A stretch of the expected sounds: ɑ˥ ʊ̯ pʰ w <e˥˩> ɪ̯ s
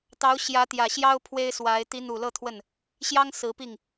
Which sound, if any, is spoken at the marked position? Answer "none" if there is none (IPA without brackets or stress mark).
e˥